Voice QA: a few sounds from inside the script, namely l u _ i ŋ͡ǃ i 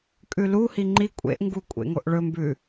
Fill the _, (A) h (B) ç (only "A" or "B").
A